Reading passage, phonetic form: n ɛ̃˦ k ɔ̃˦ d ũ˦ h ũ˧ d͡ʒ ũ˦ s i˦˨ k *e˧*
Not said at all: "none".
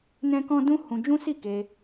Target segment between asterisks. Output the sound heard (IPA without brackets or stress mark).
e˧